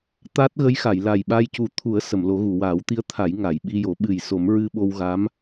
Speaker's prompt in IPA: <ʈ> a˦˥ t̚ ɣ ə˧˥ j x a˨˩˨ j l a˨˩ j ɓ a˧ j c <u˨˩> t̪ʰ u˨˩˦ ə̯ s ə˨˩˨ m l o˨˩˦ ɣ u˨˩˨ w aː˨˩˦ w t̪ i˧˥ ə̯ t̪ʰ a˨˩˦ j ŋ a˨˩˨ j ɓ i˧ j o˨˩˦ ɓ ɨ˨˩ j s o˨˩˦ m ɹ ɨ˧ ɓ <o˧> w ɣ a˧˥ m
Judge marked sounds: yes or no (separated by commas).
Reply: no, yes, yes